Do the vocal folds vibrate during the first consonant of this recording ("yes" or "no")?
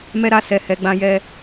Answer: yes